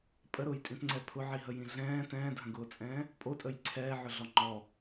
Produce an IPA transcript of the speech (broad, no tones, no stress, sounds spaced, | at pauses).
pʼ ə ɾ ʊː j tʼ ĩ t ŋ͡ǀ ɛ pʰ ʊ ʕ i ɦ ə j ĩ ɮ ɛ̃ː t ɛ̃ː dʱ ə̃ ɡ ʊː t͡sʼ ɛ̃ː | pʼ o tʼ ə j ǀʰ ɛː ʕ ʊ ɮ ɔ ŋ͡ǃ ɔ